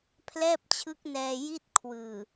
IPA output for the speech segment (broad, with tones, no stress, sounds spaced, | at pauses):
pʰ l ɛː˥˩ p̚ t͡ɕʰ ɯ˦˥ k̚ n ɛː˧ j i˥˩ t̚ kʰ w ɯː˨˩